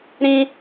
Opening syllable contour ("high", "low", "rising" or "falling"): high